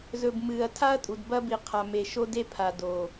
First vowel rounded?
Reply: yes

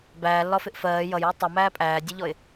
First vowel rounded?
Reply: no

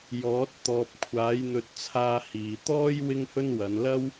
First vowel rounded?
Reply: yes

